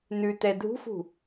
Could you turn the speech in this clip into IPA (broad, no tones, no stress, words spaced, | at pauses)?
nʉtɛ dʱṳfṳ